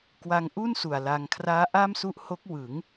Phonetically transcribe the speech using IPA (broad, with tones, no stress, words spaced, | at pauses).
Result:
kwa˧ŋʔu˥˩n su˨˩a̯la˧ŋ kʰraː˦˥ʔa˥˩msu˦˥ʔ ho˦˥k̚ wɯ˩˦ŋ